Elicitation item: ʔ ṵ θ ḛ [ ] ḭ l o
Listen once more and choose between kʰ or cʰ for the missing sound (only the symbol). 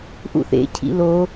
cʰ